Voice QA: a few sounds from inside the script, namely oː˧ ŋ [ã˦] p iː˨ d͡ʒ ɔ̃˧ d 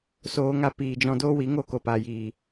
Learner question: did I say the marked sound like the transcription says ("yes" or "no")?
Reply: no